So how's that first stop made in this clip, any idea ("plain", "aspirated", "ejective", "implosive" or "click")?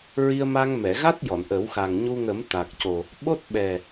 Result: plain